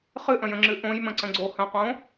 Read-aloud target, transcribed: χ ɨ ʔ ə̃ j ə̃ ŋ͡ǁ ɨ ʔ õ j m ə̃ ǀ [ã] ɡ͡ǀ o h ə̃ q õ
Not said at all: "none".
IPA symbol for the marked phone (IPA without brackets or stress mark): ə̃